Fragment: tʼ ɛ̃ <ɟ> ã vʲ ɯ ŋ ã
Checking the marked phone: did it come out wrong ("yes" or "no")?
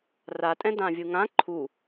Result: yes